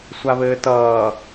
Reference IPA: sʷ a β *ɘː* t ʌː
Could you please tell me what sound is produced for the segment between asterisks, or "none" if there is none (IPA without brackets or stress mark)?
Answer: ɘː